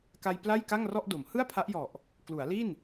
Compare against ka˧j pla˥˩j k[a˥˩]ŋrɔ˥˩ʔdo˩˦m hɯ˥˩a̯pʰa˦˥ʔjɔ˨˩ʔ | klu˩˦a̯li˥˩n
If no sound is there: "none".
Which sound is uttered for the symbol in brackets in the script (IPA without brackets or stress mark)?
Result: a˥˩